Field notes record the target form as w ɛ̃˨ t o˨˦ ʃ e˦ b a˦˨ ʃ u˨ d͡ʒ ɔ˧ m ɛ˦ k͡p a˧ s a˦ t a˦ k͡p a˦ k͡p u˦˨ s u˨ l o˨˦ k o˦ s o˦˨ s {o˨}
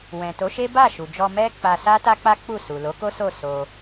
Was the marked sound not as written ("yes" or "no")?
yes